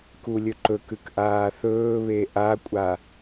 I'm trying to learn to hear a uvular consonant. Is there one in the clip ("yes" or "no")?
no